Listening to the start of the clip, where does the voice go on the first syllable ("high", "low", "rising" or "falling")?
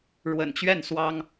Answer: low